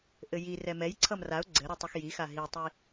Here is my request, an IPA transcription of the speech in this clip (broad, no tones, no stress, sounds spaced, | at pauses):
ʔ ɘ j i r ɛ m ɛ j ǀʰ ʌ m r a ʊ̯ ɡ͡ǀ ɘ ɾ u tˤ ʌ x j i x a ɦ i tˤ i